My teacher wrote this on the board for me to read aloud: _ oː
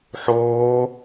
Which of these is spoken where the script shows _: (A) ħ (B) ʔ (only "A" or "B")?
A